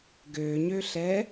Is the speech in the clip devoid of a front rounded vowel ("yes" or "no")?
no